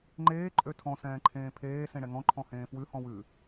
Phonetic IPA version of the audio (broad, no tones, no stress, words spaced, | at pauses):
ŋ͡ǃeː ǃʼøtʰɔ̃ sɛ̃ːǃʰẽːpʰeː sẽɽɛŋɔ̃ ǃʰɔ̃hẽːfwʉ hɔ̃wʉ